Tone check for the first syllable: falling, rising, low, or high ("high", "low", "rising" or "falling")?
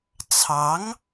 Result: rising